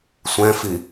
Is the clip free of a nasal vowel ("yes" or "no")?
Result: no